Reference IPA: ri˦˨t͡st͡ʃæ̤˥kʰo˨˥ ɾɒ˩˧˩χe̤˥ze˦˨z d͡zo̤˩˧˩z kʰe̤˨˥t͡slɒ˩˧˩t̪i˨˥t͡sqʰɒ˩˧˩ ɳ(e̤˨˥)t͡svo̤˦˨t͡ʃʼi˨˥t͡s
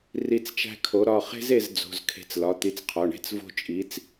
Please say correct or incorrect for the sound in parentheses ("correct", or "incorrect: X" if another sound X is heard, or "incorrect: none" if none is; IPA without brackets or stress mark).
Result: incorrect: e̤˥